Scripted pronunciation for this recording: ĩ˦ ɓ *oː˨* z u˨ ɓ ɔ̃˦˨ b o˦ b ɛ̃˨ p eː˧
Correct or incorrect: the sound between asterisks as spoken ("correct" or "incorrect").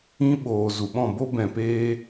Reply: correct